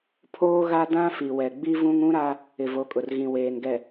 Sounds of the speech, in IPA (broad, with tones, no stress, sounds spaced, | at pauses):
pʰ oː˦ ɣ a˦ d ã˦ f i˨ w ɛ˨ ɡ͡b i˦ v ũ˦ ŋ ũ˦ ɾ a˦ | ɪ˨ v o˨˦ kʼ ʊ˨ r ɣ ĩ˨ w eː˨ n ɡ ɛ˨